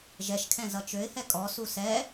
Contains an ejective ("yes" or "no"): yes